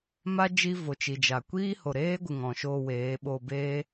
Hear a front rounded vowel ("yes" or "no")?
no